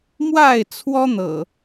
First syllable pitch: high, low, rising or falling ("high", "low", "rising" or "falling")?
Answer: falling